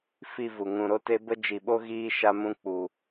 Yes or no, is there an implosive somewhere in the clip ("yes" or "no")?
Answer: yes